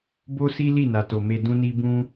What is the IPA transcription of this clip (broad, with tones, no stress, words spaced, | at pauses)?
bo˦si˦ li˦˨na˨to˨ me˧dũ˦ni˦ bũ˦